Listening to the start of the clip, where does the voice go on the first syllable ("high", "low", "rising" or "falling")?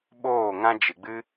falling